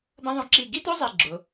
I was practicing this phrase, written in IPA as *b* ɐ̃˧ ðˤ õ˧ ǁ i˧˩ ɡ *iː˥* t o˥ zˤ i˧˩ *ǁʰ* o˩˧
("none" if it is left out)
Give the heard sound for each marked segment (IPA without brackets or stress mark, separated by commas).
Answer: b, i˥, ɡ͡ǁ